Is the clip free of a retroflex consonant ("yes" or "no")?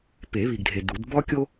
yes